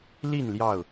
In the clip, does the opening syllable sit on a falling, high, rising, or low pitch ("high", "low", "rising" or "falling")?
falling